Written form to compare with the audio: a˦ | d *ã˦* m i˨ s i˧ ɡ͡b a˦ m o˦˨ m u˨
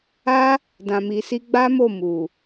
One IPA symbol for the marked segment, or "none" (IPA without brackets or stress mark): ã˨